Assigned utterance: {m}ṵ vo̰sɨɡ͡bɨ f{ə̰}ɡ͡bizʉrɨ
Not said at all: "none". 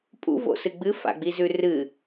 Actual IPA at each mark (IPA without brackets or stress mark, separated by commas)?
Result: pʼ, a̰